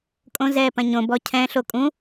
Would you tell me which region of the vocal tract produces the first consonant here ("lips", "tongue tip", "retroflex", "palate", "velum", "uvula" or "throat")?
velum